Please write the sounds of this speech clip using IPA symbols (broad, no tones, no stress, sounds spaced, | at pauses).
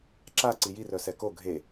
ǁ a ǀ i j i r œ s ɛ k o ɡʱ e